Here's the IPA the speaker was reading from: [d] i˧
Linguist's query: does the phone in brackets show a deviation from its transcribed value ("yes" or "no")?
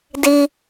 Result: no